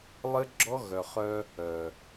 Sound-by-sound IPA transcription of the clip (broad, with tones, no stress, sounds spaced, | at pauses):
lˠ ɘ˦ ɡ͡ǁ ɔ˦ ɣ œ˨ χ œ˦ | œ˨